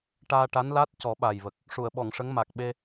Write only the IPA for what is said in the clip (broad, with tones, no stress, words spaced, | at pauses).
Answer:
ʈaː˧ʈa˧˥nla˦˥t̚ cɔ˨˩˦ɓa˨˩jvə˨˩k̚ | ʂu˨˩˨ə̯ɓɔ˨˩˨ŋʂə˧˥ŋ ma˨˩k̚ɓe˧